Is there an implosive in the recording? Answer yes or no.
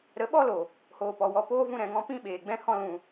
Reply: yes